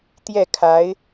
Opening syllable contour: falling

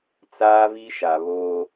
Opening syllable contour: high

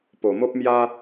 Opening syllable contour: low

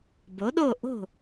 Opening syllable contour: rising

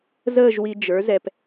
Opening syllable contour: falling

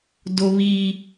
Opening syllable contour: high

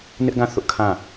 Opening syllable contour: high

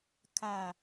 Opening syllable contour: low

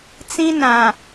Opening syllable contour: high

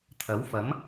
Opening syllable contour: rising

